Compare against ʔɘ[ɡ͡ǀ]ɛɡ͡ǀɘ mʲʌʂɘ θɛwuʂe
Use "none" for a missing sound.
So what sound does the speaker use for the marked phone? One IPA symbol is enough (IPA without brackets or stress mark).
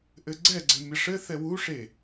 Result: ɡ͡ǀ